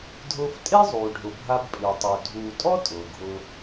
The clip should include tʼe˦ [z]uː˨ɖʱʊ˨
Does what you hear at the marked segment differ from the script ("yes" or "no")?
yes